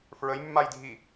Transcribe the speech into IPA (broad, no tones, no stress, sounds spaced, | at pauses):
f ɹ ə j mː a j dʱ i